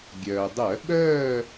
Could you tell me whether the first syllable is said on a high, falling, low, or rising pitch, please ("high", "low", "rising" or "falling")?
low